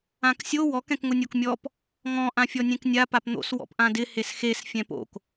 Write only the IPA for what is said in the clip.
ãksʲo wɔk ɛ̃kŋʊnʲokmʲɔp | ŋɔ̃ ʔãfʲɔnʲẽknʲa papn̪o̰s wɔ̰pʔãdɪ hesxes fʲɛ̃po̰k

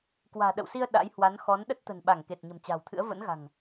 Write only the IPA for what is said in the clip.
kwa̤ː˨˩ɗə̰˧˨wsi˧ə̯ ɗa̰˧˥j hwa˨˦nxɔ˨˦n ɗə˦˥t̚t̪ə̤˨˩nɓa˧˩ŋ ke˨˩t̚ ɲə̤˨˩mt͡ɕa̤ː˨˩wt̪ʰɨ̰˧˥ə̯ və̰˧˥nɣa̤˨˩ŋ

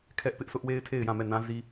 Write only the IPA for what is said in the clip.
kʰɛ˦ʔpɪ˦ʔsʊ˦ʔwe˦ɪ̯ tʰe˦˨ɪ̯jã˦˨mɛ˦˨ nã˦ zi˦

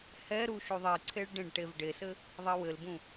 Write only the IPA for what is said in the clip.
hɛɾu ʃuðˤiǀʰeɭ ɖẽɖʈevɖesɘ | ðˤiwɘlbũ

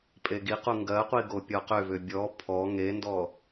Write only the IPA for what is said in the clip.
pʼeɡiqu ŋɡɜqʷi ɡopʲɔqʏvʏ bʲɔ pʰɔ ŋendɔ

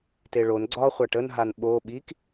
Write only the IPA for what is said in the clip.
teɭon ɡ͡ǀɒ χʷaʈən ɦanɓo ɓik

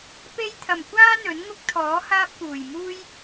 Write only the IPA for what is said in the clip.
pe˥j t̪ʰɐ˨˩mkʷaː˥ n̪ɵ˨˥nŋʊ˥k̚t̪ʰɔː˨˥ haː˥p̚kuː˨˩jmuː˥j

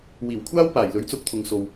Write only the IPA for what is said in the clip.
wiː˨˩wkʷʰaː˥w paː˨˩jlɵ˨˥ɥt͡sʊ˧k̚t̪ʰʊ˨ŋ so˧w

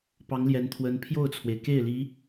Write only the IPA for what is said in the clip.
pɑ˧˥ŋljɛ˧˥nt̪ʰwə˧˥n pʰjo˥˩ʊ̯t͡sʰwe˩ɪ̯ ke˥˩ɪ̯li˧˥

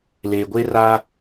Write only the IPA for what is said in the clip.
leː˨ɡʷe˦ra˦

